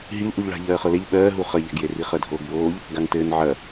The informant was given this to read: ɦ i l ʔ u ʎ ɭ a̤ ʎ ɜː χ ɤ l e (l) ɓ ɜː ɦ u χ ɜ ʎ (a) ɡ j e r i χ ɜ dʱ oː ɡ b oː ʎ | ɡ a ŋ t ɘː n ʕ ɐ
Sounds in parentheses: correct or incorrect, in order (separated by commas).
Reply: incorrect, incorrect